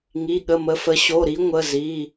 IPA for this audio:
ŋ i˩˧˩ ɠ ə˩˧˩ m ə˩˧˩ f ə˨˦ ɕ o˩˧˩ ɾ i˨˦ ŋʷ ə˩˧˩ z i˩˧˩

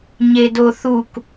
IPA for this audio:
ɲ e d o θ u k

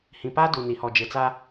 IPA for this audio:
h ĩ˨ p a˦ d u˨ n i˨ h ɔ˨ d͡ʒ ɪ˨ t͡s a˦

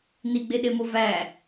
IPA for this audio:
n i ɡ͡b e ɗ e m o v æ

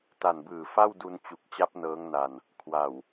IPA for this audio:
t a˨˩ n b ɯː˨˩ f a˥˩ w d u˧ n t͡ɕ u˨˩ k̚ t͡ɕ a˦˥ p̚ n ɤː˦˥ ŋ n a˧ n | kʰ w a˨˩ w

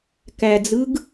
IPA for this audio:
k æ d͡z ɯ ɡ

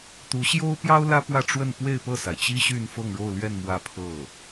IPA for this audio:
t̪ u˧˥ ɕ j o˥ ʊ̯ p j ɑ˥ ʊ̯ l ä˥ p w ä˥˧ ʈ͡ʂ w ə˥˧ n p w e˥˧ ɪ̯ p ɤ˥˩ s a˩ ɪ̯ t͡ɕ i˥ ɕ y˥˧ n f ɤ˥˧ ŋ ɻ o˥˧ ʊ̯ l ɥ ɛ˥˧ n m w ä˥˧ pʰ ɤ˥˩

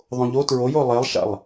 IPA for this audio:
ðˤ õ ʎ o t ɹ o j o lˠ e lˠ ʃ a̰ lˠ

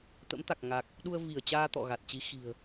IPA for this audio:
t̪ ə̰˧˥ m t̪ a˨˩ k̚ ŋ a˨˩ k̚ | ɗ u˧ ə̯ v i˧˩ ə̯ t͡ɕ aː˧ t̪ ɔ̰˧˨ ɣ a˨˩ t̚ t͡ɕ i˨˦ x i̤˨˩ ə̯

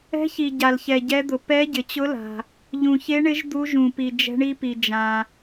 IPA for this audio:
ɛ̤˧˥ ç i˨ ɟ a˨ l ç ɛ˨ ɟ ɛ˧˥ d̪ ʊ˨ p ɛ˧˥ ɟ ɪ˨ t͡ɕ ʊ˧˥ l a̤˨ | ʎ ũ˨ ç e˧˥ ɳ ɪ˧˥ ʒ d̪ u˧˥ ʒ ũ˨ p i˨ d͡ʒ ɛ̤˧˥ ɳ i˧˥ p i˨ d͡ʒ ã˨

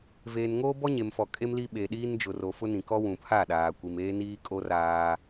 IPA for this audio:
v eː˨ n ŋ oː˦ b ɔ˦ ɲ e˨ m f ɔ˨ kʼ e˦ m l i˦ ɓ e˨ ɗ iː˦ n d͡ʒ ʊ˨ r o˨ f ʊ˦ n ĩ˨ k ɔ˦ w ũ˨ pʰ a˦˨ ɗ aː˨ kʷ i˨ m eː˦ n iː˦ kʼ o˦ r aː˦

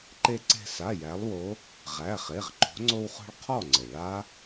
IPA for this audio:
ǃ e˧ ǀ e̤˧ s a˩˧˩ j æ˩˧ lˠ w o˩˧ | ʁ æ˩˧˩ χ e˩˧˩ ʁ ǃ o̤˩˧ ŋ͡ǀ o˧ w χ o̤˧ ɭ qʰ ɔ˥˨ ŋ͡ǀ ɘ˩ ɭ a˦˥

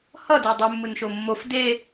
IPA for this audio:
h ʌ d e dˤ ɯ mː ɯ n ʃ o mː o f d e

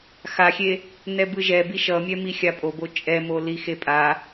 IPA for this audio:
x a xʲ e | n ɛ b ɯ ʒ ɛ b i ʃ ʌ mʲ ɛ m i xʲ a pʼ o b o t͡ʃʼ ɛ m o l i x e pʼ a

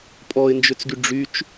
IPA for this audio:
pʼ ɔ ɪ̯ n d͡ʒ ʏ t͡s ɡ y ɖ͡ʐ y t͡ʃ

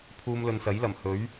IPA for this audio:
pʰ uː˧ m l ɵ˨ n s ɐ˨˥ j l ɐ˨˩ m h ɵ˨˥ ɥ

